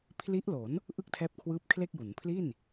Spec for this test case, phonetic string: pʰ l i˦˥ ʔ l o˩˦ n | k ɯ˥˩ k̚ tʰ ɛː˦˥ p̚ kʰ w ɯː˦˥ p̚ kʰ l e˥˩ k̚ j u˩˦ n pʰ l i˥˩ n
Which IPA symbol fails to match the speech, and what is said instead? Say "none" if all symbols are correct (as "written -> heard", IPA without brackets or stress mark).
k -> ʔ